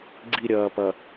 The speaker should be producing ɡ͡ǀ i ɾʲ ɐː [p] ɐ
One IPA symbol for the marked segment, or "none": p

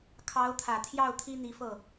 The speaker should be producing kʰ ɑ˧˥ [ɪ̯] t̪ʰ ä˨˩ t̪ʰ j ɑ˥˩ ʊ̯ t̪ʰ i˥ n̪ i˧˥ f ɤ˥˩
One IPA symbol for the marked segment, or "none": ʊ̯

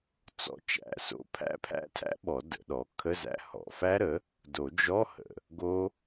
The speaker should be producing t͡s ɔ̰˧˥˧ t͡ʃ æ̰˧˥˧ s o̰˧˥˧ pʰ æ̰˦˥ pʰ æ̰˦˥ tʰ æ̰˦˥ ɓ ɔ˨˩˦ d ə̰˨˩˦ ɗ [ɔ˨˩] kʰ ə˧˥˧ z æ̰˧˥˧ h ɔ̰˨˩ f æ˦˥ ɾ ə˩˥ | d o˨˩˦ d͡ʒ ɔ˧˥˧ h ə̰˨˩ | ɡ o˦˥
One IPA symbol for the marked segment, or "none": ɔ˩˥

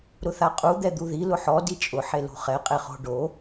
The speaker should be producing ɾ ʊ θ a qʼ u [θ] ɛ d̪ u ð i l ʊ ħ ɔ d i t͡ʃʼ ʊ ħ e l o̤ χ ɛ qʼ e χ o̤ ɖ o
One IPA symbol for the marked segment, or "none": d̪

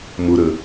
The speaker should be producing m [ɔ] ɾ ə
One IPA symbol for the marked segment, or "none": ʊ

